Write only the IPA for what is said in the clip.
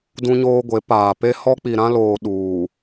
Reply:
d ũ˦ ɲ oː˦ ɡʷ e˨˦ p aː˨ p e˦ h ɔ˦ k͡p i˨ ɾ ã˦ l oː˨ ɗ uː˨

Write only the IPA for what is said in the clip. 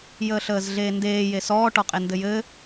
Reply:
j əː ɬ əː z ɮ eː n d eː j e s ɔː ʈ ɔ qʼ e n d ɘ j ɘː

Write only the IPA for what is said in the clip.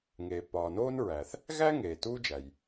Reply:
ŋ eː˩ pː ɒː˩ n oː˥ n ɹ æ˩ θ | ɣ æ˥ ŋ eː˩ t uː˥ d͡ʒ æ˩ j

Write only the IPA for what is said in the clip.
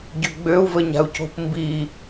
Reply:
ɟ ø ɡ͡b ø u̯ v ə ɲ a̤ u̯ c o̤ p m b i

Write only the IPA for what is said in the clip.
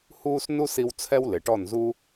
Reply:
h uː˦ s n u˦ s i˧ w t͡sʰ ɛ˦ w l ɪ˨ ʈ ɔ˦˨ n z u˦

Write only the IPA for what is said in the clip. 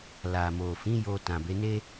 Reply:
l a˨ m o˨ f ĩ˨˦ j o˧ t ã˨ b e˨˦ n e˦

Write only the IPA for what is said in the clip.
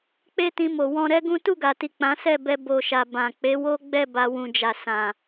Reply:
k͡p e˦ t ĩ˧ m o˨ w ɔ̃˧ ɾ ɛ˦ ɡ ũ˦ t u˦˨ ɡ a˨ t i˨ k͡p ã˨˦ s ɛ˦˨ b ɛ˧ b o˧ ʃ a˨ b ã˨ k͡p e˨˦ w o˦ ɡ͡b ɛ˦˨ b a˧ w ũ˨ d͡ʒ a˨ s ã˨

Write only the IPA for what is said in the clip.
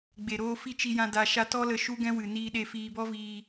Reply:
ɡ͡b e˨ ɾ oː˧ f i˦˨ t͡ʃ i˧ j ã˧ d a˧ ʃ a˧ t ɔ˦ l ə˧ ʃ u˦ ɡ ɛ̃˦ w ɨ˨ n iː˧ ɗ e˧ f iː˧ b ɔ˦ v iː˧

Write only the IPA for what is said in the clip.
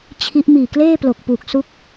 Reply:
t͡ɕʰ i˦˥ ʔ m iː˨˩ k l eː˥˩ p l o˨˩ k̚ p uː˨˩ k̚ s u˦˥ k̚

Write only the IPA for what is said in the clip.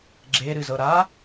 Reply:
ɡ͡ǁ e ɾ ɨ z ɤ ɾ a

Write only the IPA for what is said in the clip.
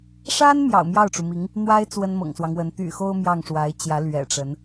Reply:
ʂ a˥ n m j ɑ̰˨˩ ʊ̯ m j ɑ˥˩ ʊ̯ ʈ͡ʂ u˩ m i˧˥ ŋ | n̪ w a˥ ɪ̯ t͡s w ə˥ n m ɤ̰˨˩ ŋ s w ɑ˦ ŋ w ə˧˥ n t̪ y̰˨˩ x o˥ ʊ̯ m j ɑ˥˩ ŋ ʂ w a˧˥ ɪ̯ t͡ɕ j ä˧˥ l ɥ ɛ̰˨˩ ʈ͡ʂ ə˧˥ n

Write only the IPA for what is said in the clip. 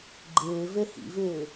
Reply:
ɡ͡ǃ ɪː v e h ḭ v ɪː

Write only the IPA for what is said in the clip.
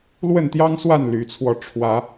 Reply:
l w ə˥˨ n t̪ j ɑ˦ ŋ s w a˥˨ n l y˨˦ t͡sʰ w ɔ˧ ʈ͡ʂʰ w ä˨˦

